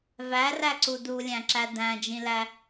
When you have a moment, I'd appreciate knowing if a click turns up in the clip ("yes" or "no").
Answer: yes